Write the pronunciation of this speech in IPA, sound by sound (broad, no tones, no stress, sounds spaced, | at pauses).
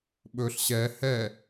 ɓ ɵ ɬ ɕ ɛ h ɛ